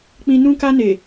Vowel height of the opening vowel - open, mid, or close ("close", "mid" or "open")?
close